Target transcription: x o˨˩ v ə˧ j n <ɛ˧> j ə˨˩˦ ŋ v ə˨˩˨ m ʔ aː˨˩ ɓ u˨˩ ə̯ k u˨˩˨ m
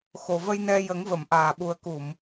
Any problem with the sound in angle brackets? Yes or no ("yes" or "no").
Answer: no